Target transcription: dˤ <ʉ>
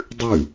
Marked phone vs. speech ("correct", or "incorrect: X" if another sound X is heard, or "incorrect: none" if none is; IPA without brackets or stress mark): correct